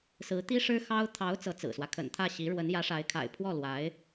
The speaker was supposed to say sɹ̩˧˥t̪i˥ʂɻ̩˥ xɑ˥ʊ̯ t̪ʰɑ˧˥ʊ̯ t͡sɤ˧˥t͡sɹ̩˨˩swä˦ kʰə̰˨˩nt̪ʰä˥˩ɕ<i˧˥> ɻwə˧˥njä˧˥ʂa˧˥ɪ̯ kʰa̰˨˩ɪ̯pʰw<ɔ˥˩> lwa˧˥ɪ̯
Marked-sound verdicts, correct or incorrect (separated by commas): correct, correct